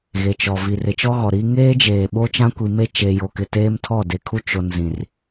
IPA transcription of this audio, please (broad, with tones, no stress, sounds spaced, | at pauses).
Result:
ɣ e˨ t͡ʃ ɔ˨ v i˨ r ɪ˨ t͡ʃ ɔ˦ ɣ ɔ˨ ɾ i˦ ŋ eː˦ d͡ʒ eː˨ ɓ o˦ t͡ʃ ã˦ kʷ i˨ m e˦ t͡ʃ e˨ j o˨ k ɪ˨ t eː˦ m tʰ ɔ˦˨ d e˨ kʰ u˦ t͡ʃ o˨ n z ĩ˨ r